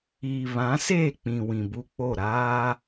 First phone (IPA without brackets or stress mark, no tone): iː